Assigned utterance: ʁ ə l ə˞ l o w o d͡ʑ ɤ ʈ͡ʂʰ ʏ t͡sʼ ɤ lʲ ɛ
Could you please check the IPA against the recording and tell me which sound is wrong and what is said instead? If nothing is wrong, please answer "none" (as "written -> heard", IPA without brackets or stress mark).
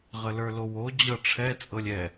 ʏ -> ɛ